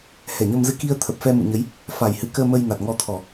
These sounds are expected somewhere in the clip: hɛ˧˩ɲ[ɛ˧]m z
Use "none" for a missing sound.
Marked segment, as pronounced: ə˧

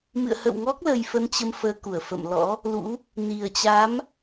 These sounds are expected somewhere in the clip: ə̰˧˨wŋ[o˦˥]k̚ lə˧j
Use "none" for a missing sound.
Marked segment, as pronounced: ɔ˦˥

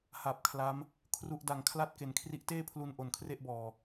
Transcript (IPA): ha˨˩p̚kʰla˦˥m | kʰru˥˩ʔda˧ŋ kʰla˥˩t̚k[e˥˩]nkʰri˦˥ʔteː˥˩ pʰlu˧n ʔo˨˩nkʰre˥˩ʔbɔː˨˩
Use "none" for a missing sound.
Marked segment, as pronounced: e˨˩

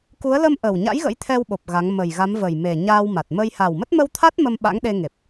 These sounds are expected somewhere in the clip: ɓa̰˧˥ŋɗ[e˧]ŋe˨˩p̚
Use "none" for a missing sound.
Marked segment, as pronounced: e˧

